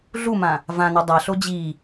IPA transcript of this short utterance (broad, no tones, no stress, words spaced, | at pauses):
ɮumã | vãnɔ dˤaɬo d͡ʑi